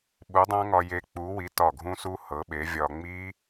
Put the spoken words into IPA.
ɓ u˨˥ dˤ ã˦˥ ŋ ɒ˧ j e˧ k͡p u˨˥ w i˨˥ t ɒ˧˩ ɡʱ ũ˦˥ s u˦˥ h ɤ˨˥ ɓ e˨˥ vʲ ɒ˧ ŋ͡m i˦˥

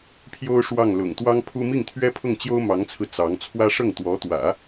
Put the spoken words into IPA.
pʰ j o˥ ʊ̯ ʂ w ɑ˥˩ ŋ l ʊ̰˨˩ ŋ t̪ w ɑ˥ ŋ pʰ u˥ m i˥˩ ŋ t̪ʰ ɥ ɛ˥ pʰ ʊ˥˩ ŋ t͡ɕ j o˥ ʊ̯ m ɑ˧˥ ŋ t͡sʰ ɹ̩˧ t͡s ɑ˧˥ ŋ t͡sʰ w ä˥ ʂ ɤ˥˩ ŋ t̪ w ɔ˧˥ t̪ w ä̰˨˩˦

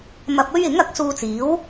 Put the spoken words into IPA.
m ɐ˧ p̚ ɵ˥ ɥ ɪ˨˥ ŋ ɐ˨˥ k̚ s uː˧ t͡s iː˨˥ w

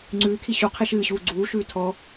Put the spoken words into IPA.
ŋ͡ǀ ʉː kʰ i ɕ u qʰ i ʃ ɨː ɕ uː ɡ͡ǀ uː ʃ ʉː tʰ ɔ

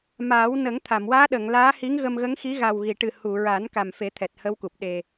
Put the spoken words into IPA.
m aː˨˩˦ w n ə˨˩˦ ŋ t̪ʰ a˨˩˨ m w aː˧˥ ɗ ə˨˩˨ ŋ l aː˧˥ h i˧˥ ŋ ɣ ə˧ m ɣ ə˧˥ ŋ x i˧˥ ɣ a˨˩ w ɣ i˨˩˨ ʈ ɨ˨˩ h u˨˩˨ ɹ a˨˩˦ n k a˨˩ m f e˨˩˦ t̪ʰ ɛ˨˩ t̚ h ə˧˥ w k u˨˩ p̚ ɗ e˨˩

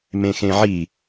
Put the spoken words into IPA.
m ẽ x ẽ ʕ i

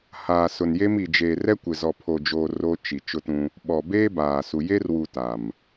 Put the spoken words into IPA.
h aː˨ s ʊ˨ n j e˦ m i˨ d͡ʒ eː˨ r ɛ˦ kʷ ɪ˨ z ɔ˨ pʰ o˨ d͡ʒ oː˨ r o˦ t͡ʃ i˨ t͡ʃ ʊ˦ t ũ˦ | ɓ ɔ˨ b eː˦ b aː˨ s u˨ j e˦ r w u˨ t a˨ m

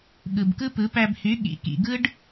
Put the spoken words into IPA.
ɠ ɯ˨ b k ɯ˦ p ɯ˨˦ p æ˧ b h y˨˦ ɠ ḭ˨ k ḭ˨ ɡ ɯ˦ ɖ

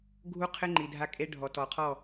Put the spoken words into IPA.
ɡʱ u˦ qʰ ɪ˦ ŋ͡ǃ i˨ dʱ a˦ kʼ e˦ ɖʱ ɔ˨ t ɔ˨ qʰ ɔ˦˨

